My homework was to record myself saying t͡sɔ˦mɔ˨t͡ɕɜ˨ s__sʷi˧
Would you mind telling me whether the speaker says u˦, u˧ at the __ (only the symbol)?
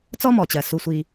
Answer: u˧